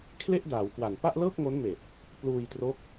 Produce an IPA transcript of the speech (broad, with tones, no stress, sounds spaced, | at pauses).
kʰ l e˥˩ ʔ d aː˩˦ w k w a˨˩ n p a˥˩ ʔ l ɤː˥˩ k̚ ŋ o˦˥ n m eː˨˩ t̚ | p l uː˧ j t r o˦˥ k̚